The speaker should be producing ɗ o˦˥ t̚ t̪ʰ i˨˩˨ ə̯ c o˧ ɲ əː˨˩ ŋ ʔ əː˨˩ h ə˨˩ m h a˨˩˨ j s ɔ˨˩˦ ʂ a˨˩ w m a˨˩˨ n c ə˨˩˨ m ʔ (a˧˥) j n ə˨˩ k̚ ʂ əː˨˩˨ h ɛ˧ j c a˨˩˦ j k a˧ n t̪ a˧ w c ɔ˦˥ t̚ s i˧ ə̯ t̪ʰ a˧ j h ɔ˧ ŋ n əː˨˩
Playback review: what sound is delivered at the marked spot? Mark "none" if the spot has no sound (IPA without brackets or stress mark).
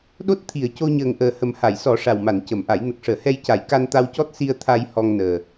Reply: a˨˩˦